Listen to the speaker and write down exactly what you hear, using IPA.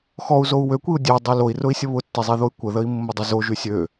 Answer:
x ɔ u̯ z o u̯ w ø kʷ i u̯ dʲ ø dˤ y l o i̯ r ʊ i̯ sʲ ə β ʊ tː i zˤ i ð o y̯ kʷ ə ð ə i̯ mː ʊ dˤ ʊ z o ʒ y sʲ ø

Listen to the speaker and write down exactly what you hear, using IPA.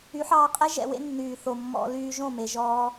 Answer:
y˨˦ ħ ɑː˧ qʼ ɛ˦ ʒ ɛ̰˧ w ḛ˦ nː yː˨ θ o˨ mː ɔ̰˧ l yː˧ ʒ õ˦˨ m e˨ ʒ ɔː˧

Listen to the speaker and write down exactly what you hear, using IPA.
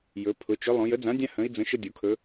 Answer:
j ɵ˩˧ pʰ ʊ˩˧ t͡ʃ ɵ˨˥ lˠ õ˩˧ j ə˨˥ d͡z ã˨˥ dʲ ã˦ h ə̃˨˥ i̯ d͡z ə̃˨˥ ʃ ə˦ dʲ o˩˧ kʰ ɵ˨˥

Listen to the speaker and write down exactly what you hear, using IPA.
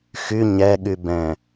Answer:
x y ɲ ɛ ɠ y b ɛ̃

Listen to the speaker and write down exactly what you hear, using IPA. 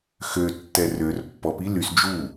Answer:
x ø tː ɛ r ø r pː ɔ p i l y s d͡ʒ u

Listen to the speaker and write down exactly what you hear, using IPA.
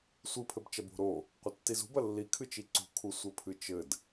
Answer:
sʷ ɨ pʰ ɘ b t͡ʃ ɐ b o̤ ɾ o | qʷ ɐ tː i z ṳ b ɐ lː i kʰ ɨ t͡ʃ i ǀ ṳ kʰ u sʷ ɘ pʰ ɨ t͡ʃ ɘ d

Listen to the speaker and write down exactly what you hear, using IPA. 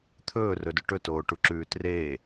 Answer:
t̪ʰ ɵː r ɵ d ɵ ʈ ɵ t oː ʈ u ǁ ʉː t r eː

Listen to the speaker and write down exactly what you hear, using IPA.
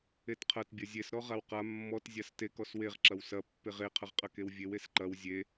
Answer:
e t qʰ ɐ t bʲ ɐ zʲ e s ɾ ɔ ʁ a w q a mː ɔ t zʲ a s t e k ɔ s w e ʁ ǁ ɐ w s ɐ pː e ʁ e qʰ ɐ ʁ qʼ ɐ k e w vʲ e w e s ǃ ɐ w zʲ e

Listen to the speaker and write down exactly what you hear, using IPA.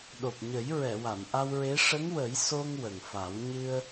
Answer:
ɗ o˨˩ p̚ ɲ ə˨˩˦ j ɹ ɛ˨˩˨ w a˨˩˨ m ʔ a˧ w ɹ e˧˥ ʂ ə˧˥ ŋ w ə˨˩˦ j s o˧ ŋ w ə˨˩ ŋ f a˨˩˦ w ɲ ɨ˧ ə̯

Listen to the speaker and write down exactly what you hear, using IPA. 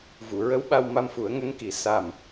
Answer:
v u˨˩˨ ɹ ə˧˥ w ɓ a˧ w m a˧ m f u˨˩˦ ə̯ ŋ ə˧˥ ŋ k i˨˩ s a˨˩ m

